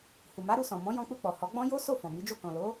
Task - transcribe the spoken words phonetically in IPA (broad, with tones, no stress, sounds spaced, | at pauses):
h u˨ m a˨˦ ɾ u˧ s ɔ̃˨ m ɔ̃˨˦ j ɔ̃˧ k͡p u˧ k͡p ɔ˨ h ɔ˨˦ ɡ͡b ɔ̃˦ j o˦ s o˦˨ f ɔ̃˨ m i˨˦ d͡ʒ o˦˨ k ɔ̃˨ l o˨˦